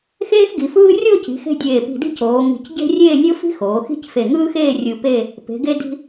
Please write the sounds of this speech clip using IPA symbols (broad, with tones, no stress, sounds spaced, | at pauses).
x eː˥ x ɡ i˩˧ f ɯː˥ rʲ o˥˧ c i̤˩˧ x e̤˧ dʲ eː˧˩ p i̤˧˩ d i̤˥˧ c oː˩˧ ŋ i̤˧˩ c ɟ e̤˥ rʲ eː˥˧ nʲ o˥ f i̤˥ x oː˩˧ x i̤˥ c f e˧˩ ŋ ɯː˥ x eː˥˧ rʲ ɯ˧ p e˥˧ | p e̤˩˧ ɡ e˧ d i̤˧